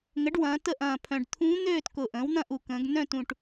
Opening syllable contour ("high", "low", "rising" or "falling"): rising